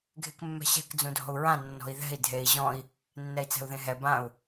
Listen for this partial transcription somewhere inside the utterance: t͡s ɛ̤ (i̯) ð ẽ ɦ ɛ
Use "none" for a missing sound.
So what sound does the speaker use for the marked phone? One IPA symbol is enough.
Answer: u̯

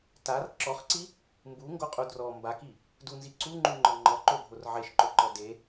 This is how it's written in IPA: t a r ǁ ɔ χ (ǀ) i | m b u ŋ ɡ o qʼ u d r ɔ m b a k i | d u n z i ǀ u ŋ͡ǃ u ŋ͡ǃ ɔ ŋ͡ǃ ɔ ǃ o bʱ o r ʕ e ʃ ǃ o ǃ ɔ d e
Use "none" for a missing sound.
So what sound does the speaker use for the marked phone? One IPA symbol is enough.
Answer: ǀ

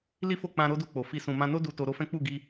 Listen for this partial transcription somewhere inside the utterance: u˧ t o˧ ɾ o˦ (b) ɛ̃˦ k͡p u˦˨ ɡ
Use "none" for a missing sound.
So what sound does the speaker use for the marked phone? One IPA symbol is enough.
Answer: f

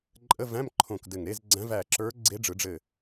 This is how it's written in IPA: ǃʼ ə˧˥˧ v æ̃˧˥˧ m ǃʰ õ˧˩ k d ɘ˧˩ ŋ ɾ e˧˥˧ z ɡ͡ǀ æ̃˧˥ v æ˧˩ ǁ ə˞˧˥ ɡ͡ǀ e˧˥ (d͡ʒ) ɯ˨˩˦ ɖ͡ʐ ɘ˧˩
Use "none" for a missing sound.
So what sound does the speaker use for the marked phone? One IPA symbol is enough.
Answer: ɖ͡ʐ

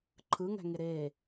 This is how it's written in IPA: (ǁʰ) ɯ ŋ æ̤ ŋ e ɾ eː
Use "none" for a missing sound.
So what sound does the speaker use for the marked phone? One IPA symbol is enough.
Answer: ǃʰ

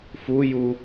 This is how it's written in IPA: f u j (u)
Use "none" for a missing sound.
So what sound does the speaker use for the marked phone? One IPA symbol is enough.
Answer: u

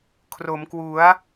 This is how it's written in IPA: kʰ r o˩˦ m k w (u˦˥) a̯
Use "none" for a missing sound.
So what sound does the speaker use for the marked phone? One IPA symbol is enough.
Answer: u˩˦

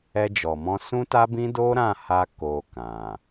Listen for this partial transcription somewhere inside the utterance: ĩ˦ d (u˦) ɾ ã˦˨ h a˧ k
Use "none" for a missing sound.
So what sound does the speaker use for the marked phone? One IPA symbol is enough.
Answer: o˦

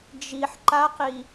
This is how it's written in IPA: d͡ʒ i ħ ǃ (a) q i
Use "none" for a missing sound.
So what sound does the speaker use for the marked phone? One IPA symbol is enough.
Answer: a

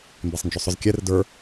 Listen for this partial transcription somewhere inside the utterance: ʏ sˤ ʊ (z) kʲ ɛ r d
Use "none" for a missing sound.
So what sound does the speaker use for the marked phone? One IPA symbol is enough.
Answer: z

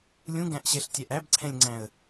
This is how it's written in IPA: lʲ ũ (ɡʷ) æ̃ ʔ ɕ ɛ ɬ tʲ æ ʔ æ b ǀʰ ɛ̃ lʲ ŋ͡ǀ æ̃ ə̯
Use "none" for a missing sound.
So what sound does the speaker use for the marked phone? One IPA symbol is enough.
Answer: ɡ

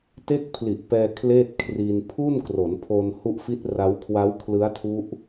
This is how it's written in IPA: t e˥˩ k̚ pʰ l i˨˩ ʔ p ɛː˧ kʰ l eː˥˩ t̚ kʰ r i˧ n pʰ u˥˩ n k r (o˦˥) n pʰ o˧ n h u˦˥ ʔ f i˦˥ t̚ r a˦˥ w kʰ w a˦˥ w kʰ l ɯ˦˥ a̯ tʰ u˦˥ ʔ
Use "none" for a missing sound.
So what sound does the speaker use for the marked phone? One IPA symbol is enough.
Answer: o˩˦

